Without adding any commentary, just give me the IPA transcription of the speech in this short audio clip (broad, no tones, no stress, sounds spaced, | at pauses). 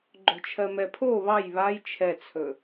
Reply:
ɡ͡ǃ o̤ t͡ʃʰ ɜ m ɛ pʰ o β ɑ j β a j t͡ʃʰ ɛ t͡sʰ ɵ